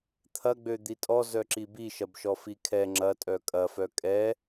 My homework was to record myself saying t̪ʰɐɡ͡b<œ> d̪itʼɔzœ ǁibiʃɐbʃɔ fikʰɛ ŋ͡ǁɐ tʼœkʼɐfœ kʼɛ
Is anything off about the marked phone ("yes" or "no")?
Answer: yes